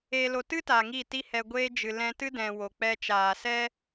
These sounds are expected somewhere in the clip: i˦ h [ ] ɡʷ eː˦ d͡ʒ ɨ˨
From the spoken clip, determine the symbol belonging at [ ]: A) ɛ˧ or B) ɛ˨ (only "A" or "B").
A